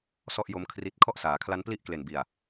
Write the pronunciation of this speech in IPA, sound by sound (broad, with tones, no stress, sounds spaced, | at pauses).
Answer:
s ɔ˥˩ ʔ j o˦˥ m kʰ r i˦˥ t̚ kʰ ɔ˥˩ ʔ s aː˩˦ kʰ l a˦˥ n p l i˥˩ ʔ k l e˨˩ n b i˨˩ a̯